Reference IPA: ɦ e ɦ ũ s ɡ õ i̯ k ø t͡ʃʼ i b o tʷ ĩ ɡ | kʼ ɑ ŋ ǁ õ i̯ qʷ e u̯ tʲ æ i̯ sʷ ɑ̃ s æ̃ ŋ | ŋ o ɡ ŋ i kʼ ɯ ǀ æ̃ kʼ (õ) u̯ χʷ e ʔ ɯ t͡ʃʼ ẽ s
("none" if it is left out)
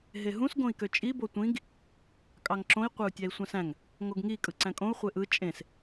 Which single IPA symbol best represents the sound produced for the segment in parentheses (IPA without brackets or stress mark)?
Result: õ